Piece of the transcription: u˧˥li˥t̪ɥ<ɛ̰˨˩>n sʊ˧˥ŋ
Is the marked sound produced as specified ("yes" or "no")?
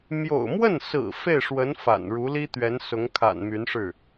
no